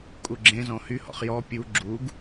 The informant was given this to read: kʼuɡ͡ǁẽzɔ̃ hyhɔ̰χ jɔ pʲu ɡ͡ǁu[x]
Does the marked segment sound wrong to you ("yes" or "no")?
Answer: yes